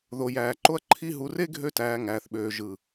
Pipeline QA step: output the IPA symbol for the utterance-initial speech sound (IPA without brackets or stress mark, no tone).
ð